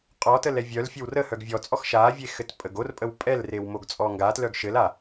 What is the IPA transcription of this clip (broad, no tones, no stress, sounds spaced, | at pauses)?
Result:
qʼ ɔ t ə l ɛ vʲ œ l fʲ ɘ w r ə h œ ɡ vʲ ɔ t͡sʼ ɔ x ʃ a vʲ e x ɘ t pʼ ə ɡ o r pʼ ə w pʼ ɛ l r e w m o ɡ t͡sʼ ɔ ŋ ɡ a t l œ ɡ ʃ ɘ l a